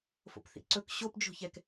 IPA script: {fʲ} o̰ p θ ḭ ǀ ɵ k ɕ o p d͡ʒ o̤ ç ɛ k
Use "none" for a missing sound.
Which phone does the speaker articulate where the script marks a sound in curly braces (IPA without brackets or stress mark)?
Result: f